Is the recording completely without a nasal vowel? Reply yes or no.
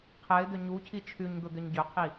yes